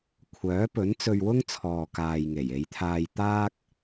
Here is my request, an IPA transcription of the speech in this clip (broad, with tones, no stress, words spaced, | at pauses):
kʷʰœː˨˥pɵ˨˥nt͡sɵ˧ɥwʊ˥ŋ t͡sʰɔː˨kaː˨jŋe˨˩j e˨˧jt̪ʰaː˧j t̪aː˥k̚